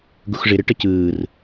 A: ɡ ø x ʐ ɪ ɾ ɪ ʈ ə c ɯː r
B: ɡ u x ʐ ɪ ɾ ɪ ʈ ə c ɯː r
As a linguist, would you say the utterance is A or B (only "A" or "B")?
B